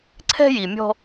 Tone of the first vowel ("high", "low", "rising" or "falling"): high